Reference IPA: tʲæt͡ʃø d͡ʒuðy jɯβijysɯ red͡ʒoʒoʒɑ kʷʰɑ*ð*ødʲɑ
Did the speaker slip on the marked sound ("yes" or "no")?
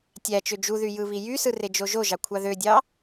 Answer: no